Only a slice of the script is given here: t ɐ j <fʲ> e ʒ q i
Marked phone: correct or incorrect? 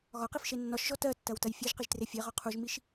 correct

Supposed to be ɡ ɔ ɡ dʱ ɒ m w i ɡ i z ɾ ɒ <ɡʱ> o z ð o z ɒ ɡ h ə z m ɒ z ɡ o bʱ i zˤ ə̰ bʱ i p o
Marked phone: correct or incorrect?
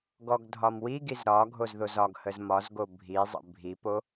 correct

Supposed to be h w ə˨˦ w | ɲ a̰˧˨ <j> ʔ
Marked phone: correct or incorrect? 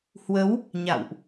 incorrect: w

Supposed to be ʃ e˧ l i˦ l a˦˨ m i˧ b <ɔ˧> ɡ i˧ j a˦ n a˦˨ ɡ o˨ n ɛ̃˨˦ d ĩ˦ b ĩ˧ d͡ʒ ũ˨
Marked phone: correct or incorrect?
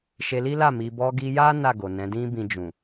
correct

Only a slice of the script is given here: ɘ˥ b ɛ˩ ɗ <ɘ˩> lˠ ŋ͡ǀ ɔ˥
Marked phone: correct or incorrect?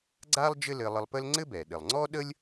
correct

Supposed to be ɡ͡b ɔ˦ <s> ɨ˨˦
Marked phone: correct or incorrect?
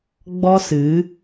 correct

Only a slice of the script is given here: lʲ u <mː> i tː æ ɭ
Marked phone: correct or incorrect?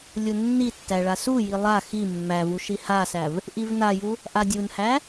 incorrect: nː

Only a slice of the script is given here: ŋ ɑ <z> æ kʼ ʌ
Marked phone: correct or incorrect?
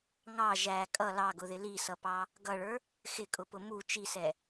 incorrect: ʒ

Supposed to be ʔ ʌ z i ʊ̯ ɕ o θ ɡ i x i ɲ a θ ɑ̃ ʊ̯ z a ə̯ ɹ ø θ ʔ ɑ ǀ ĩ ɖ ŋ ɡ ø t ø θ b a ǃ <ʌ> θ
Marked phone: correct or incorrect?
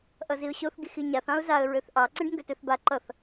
correct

